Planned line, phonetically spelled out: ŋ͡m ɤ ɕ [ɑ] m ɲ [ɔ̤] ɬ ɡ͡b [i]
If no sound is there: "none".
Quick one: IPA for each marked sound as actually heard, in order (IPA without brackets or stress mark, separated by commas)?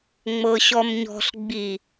ɔ, ɔ̤, i